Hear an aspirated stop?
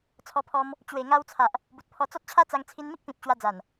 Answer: yes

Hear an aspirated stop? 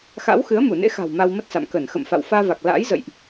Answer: no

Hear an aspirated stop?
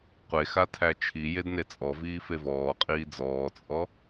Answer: yes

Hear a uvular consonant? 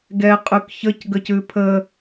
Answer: yes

